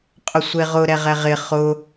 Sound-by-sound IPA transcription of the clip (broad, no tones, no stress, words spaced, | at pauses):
qʼʊsʷeʁʊ ɾɛʁɛʁɪ χʊ